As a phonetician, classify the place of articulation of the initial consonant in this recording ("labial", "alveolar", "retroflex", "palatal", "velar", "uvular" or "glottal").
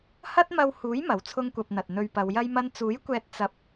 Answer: glottal